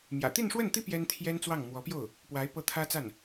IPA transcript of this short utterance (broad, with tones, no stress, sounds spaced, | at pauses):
m j ä̰˨˩ t̪ i˥˧ n ʂ w ə˥˩ n t̪ i˥ p j ɛ˥ n t̪ʰ j ɛ˥ n t͡s w ɑ˥˩ ŋ m w ɔ˧˥ p j o˥˩ ʊ̯ | p w a˧˥ ɪ̯ p ɤ˥˩ t̪ʰ ä˥ t͡s a˥˩ n